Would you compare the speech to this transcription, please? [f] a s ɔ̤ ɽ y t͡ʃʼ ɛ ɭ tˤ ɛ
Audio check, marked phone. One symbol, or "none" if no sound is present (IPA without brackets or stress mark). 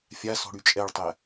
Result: fʲ